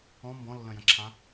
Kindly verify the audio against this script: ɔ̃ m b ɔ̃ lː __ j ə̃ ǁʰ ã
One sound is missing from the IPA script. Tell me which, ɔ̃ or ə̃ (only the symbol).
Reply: ə̃